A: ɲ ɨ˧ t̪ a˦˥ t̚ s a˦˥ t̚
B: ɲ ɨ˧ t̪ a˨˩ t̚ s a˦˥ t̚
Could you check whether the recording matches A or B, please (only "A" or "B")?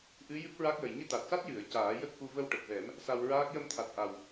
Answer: B